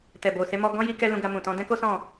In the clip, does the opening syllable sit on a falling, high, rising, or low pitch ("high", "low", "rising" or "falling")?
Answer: low